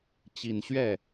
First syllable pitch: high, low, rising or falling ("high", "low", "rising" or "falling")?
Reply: low